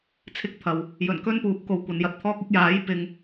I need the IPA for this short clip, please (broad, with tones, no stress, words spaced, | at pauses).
t͡sʰɪ˥k̚t̪ʰɐ˨w | jɵ˨˩nkɵ˥npuː˨p̚ko˨w kʷɐ˨˧njɐ˧t̚t̪ʰɔː˥k̚ ɪ˥k̚jaː˨˥jpɪ˨ŋ